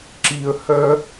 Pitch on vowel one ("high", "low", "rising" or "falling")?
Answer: low